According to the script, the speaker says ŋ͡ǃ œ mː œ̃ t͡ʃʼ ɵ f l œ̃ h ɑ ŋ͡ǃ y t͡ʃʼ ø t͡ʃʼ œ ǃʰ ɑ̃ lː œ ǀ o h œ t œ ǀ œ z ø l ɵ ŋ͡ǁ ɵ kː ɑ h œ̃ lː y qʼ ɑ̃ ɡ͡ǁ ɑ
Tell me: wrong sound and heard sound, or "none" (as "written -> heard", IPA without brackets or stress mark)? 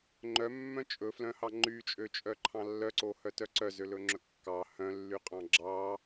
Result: none